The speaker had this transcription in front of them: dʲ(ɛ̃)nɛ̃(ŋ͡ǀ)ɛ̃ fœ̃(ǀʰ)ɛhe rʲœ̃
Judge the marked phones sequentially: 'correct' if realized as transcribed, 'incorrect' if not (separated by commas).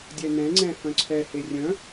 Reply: incorrect, correct, correct